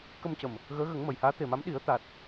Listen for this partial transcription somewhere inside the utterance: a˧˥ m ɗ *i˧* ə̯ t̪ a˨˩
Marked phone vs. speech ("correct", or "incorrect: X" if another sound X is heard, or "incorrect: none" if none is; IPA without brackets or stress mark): incorrect: i˨˩˦